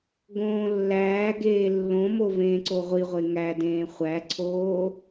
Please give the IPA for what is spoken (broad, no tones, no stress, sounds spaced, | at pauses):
ɡ õː lː æː ɡ eː lː õ m o v ẽː ǀ o ʁʷ i ʁʷ e ŋ æ d ẽː χʷ æ ǀʰ oː